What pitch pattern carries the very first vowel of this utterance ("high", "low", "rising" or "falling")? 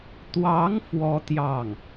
rising